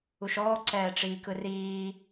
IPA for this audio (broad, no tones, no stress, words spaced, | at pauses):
uʃɔː ǀɛːʈ͡ʂiːkɯriː